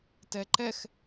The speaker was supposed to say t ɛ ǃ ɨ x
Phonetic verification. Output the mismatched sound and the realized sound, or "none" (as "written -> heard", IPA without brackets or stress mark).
ɨ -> ɛ